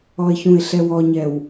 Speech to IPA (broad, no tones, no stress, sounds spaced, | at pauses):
ɔ ɪ̯ ç ũ ɪ̯ ɬ ɛ w ɔ ɲ ɛ w